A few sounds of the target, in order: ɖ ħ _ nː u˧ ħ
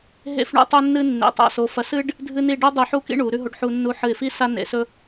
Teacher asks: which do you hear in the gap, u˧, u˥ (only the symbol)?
u˧